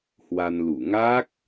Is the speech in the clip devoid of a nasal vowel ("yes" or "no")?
yes